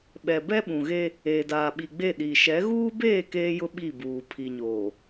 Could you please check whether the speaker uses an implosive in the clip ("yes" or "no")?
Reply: yes